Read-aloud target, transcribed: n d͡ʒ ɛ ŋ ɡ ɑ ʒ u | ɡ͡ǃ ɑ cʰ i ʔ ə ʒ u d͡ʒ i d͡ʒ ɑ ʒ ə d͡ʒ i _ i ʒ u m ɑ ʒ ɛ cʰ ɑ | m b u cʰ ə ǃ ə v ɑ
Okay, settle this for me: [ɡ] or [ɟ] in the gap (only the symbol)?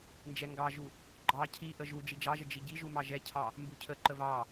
ɟ